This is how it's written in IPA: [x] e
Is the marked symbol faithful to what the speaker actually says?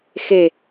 yes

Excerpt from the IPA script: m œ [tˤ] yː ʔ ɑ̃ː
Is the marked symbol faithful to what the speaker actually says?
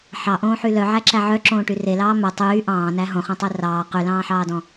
yes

